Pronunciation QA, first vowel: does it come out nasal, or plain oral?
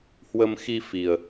oral